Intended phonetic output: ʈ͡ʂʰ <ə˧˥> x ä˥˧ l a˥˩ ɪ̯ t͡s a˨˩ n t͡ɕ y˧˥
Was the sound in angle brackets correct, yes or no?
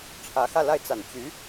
no